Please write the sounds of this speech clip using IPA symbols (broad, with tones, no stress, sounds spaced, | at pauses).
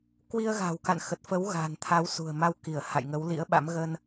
k w i˧ ə̯ ɣ a̤˨˩ w k a̰˧˨ n x ə˨˩ t̚ f ə˨˦ w ɣ a̤˨˩ n t̪ʰ a˨˦ w s ṳ˨˩ ə̯ m a˧ w k i˧˩ ə̯ h a̰˧˨ j ŋ ə˨˦ w l ḭ˧˥ ə̯ ɓ a̰˧˥ m ɣ ə˧ n